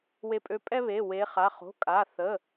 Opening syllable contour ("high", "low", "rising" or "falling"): rising